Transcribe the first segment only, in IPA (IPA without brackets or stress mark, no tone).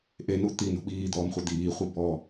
ʔ